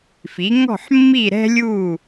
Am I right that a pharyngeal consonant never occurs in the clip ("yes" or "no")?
no